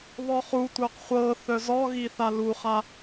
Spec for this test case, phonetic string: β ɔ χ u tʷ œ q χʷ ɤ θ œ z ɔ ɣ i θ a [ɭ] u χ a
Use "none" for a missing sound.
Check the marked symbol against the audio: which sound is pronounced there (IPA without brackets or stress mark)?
l